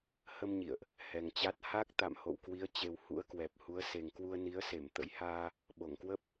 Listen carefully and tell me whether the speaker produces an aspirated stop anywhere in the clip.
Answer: no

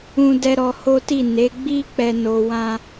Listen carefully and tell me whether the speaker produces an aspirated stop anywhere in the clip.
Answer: no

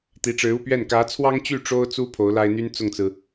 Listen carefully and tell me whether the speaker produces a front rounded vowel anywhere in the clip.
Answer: yes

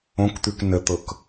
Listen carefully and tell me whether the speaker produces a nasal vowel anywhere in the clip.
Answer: yes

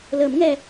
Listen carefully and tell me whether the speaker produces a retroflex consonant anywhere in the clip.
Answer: no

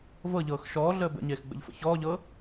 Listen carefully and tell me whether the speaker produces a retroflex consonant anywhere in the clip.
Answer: no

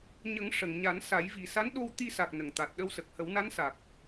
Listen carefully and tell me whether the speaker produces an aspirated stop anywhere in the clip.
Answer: no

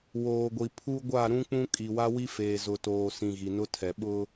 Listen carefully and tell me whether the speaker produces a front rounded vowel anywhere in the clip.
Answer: no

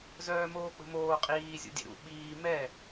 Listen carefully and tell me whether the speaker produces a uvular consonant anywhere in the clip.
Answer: yes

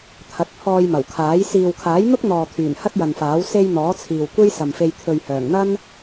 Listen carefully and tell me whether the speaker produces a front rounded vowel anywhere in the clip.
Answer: yes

